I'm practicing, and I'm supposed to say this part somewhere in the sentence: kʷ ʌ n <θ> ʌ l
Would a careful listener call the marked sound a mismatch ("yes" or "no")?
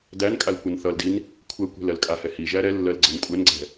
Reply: no